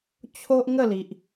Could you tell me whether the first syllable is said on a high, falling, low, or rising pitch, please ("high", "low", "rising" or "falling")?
high